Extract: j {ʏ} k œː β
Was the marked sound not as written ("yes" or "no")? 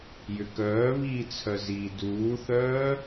no